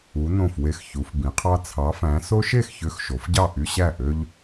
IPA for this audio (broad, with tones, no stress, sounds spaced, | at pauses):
u˩˧ n õ˧˩ f w e˧˩ x ç u˩˧ f b ĩ˩˧ qʰ ɑ˦ t͡sʰ ɑ˨˥ f æ̃˨˥ s o˦ ʃ e˥˩ x ç ø˨˥ x ʃ o˩˧ f ɟ ɑ˥˩ ʔ y˦ ɕ æ˥˩ ʔ ø˦ ʎ